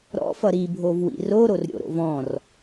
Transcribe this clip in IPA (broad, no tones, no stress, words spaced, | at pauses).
ɾɔ̰fʌ ɾibʱovwḭ roɾorɾʲo̰ɾo̰v ɔ̃r